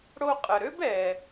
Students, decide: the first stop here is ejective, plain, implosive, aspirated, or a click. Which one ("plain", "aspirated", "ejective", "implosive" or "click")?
ejective